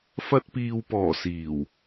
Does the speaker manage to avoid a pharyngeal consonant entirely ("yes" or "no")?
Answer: yes